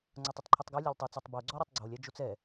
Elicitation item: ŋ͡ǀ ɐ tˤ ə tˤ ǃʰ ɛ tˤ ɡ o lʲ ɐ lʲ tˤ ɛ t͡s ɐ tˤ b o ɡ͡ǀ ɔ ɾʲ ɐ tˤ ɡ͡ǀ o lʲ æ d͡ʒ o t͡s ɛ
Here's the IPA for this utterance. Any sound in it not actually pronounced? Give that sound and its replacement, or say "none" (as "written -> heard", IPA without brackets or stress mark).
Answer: none